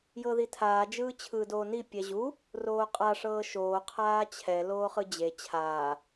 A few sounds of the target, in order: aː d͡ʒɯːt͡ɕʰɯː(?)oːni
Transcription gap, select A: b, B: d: B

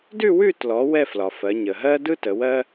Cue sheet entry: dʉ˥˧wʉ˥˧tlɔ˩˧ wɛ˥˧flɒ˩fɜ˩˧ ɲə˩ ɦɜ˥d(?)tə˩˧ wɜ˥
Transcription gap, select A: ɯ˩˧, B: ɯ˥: B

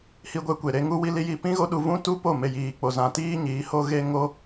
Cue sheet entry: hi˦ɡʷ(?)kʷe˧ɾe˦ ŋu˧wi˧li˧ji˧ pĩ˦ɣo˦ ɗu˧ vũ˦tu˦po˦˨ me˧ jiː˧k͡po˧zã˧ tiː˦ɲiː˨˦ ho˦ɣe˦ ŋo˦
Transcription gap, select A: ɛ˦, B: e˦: A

